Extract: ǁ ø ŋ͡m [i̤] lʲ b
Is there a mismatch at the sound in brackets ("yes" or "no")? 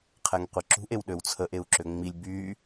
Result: yes